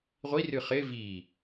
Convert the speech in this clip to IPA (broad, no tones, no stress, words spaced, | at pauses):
ʁʷirɨ χɪ vi